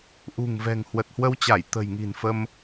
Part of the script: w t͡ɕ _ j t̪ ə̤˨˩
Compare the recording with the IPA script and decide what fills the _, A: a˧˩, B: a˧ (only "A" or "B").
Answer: A